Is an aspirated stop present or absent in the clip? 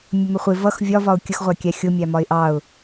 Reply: absent